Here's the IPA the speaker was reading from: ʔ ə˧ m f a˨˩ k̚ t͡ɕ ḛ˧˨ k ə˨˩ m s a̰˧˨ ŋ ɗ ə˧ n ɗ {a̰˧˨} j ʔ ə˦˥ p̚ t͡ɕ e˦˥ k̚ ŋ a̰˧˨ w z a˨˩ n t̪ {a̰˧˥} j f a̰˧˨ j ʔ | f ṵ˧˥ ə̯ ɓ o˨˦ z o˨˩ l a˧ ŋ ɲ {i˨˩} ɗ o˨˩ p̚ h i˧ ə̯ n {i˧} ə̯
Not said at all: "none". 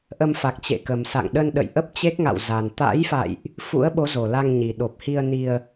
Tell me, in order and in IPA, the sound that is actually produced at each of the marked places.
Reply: ə̰˧˨, a̰˧˥, i˨˩, i˧

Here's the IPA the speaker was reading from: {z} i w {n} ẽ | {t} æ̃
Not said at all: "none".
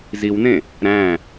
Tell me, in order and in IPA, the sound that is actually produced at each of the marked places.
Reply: z, n, ɾ

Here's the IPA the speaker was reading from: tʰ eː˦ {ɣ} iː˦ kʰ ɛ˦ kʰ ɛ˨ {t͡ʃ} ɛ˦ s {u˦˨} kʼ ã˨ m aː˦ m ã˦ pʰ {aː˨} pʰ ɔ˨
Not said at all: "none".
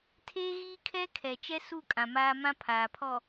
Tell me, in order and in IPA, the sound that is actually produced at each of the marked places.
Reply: ɣ, t͡ʃ, u˦˨, aː˨

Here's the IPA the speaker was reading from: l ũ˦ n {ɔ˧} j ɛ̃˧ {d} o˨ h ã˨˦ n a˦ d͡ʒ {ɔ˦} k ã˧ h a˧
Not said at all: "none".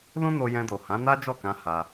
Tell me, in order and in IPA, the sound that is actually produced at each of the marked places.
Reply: o˧, d, ɔ˦˨

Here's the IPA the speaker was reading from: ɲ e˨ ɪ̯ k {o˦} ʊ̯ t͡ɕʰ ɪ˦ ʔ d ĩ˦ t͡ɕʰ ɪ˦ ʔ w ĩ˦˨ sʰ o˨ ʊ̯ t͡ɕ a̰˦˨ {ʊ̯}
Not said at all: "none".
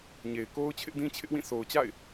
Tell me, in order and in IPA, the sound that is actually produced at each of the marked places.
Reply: o˦, ɪ̯

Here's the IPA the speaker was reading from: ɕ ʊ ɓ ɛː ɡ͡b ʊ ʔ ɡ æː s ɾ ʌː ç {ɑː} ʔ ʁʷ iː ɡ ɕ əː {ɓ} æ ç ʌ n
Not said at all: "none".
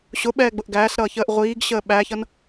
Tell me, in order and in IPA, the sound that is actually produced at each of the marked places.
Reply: əː, ɓ

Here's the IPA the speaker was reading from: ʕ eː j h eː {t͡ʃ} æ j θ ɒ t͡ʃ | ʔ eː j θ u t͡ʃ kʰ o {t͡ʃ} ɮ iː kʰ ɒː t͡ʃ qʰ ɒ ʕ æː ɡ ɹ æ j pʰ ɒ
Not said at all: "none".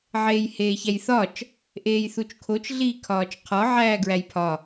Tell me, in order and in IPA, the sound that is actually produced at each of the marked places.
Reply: ç, t͡ʃ

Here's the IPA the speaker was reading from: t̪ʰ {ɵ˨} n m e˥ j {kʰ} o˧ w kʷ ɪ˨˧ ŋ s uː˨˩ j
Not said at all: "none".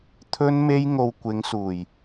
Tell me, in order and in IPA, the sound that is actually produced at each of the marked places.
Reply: ɵ˥, ŋ

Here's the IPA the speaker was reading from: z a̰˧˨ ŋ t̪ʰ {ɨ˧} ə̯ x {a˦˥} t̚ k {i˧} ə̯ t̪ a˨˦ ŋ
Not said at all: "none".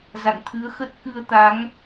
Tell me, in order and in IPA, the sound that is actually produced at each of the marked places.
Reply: ɨ˨˦, ə˦˥, ɨ˧

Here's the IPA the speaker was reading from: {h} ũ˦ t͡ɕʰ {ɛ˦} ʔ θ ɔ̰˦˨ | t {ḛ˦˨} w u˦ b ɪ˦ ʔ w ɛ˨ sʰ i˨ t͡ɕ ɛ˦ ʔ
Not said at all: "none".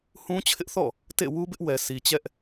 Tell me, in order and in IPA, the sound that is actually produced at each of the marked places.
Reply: h, ɪ˦, ḛ˦˨

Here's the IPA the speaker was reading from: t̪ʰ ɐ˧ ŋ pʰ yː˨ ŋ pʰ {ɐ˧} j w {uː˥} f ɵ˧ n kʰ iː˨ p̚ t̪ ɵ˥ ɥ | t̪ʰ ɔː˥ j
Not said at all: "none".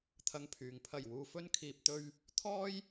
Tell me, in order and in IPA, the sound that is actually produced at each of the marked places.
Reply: ɐ˨˩, uː˨

